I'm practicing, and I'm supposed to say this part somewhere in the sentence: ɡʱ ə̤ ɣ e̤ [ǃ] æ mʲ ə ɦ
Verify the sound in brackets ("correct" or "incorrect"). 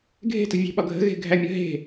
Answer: incorrect